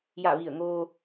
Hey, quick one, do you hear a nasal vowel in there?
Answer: no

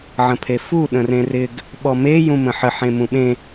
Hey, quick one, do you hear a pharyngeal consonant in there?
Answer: yes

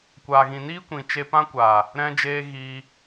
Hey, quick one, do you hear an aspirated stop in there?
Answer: no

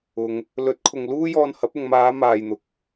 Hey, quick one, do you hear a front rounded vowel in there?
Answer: no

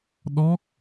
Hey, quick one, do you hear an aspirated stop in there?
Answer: no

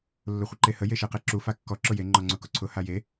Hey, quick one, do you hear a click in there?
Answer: yes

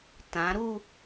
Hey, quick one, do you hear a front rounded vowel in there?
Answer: no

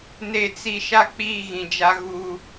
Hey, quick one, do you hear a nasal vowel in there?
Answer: yes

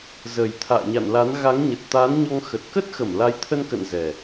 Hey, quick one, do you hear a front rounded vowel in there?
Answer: no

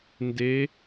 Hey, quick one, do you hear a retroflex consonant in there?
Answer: no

